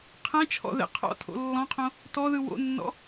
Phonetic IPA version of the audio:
qʰ ɛ̃ t͡ʃʰ ɔ̰ ð ɛ̰ qʰ ɔ̰ tʰ o̰ lː ɔ̃ qʰ õ | t ɔ ð ɯ w o̰ nː ɔ̰

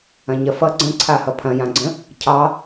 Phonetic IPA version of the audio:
ɐ̃ ɲ ɐ f ʌ ɡ͡ǀ ə̃ ǀʰ a h ʌ pʰ ɐ̃ j ã ɡ͡ǀ ə̃ | cʰ ɑ

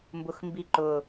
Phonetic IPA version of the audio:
m b ʊ x m b i ǃ ʊ

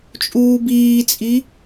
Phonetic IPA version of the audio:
t͡ʃʼ uː b iː t͡sʼ i

